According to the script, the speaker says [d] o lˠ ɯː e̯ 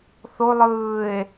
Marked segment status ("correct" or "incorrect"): incorrect